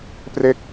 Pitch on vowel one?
falling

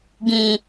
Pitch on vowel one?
low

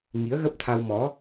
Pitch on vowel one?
rising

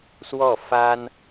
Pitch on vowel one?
falling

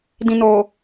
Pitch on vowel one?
low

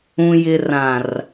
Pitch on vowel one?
low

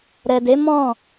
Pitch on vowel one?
low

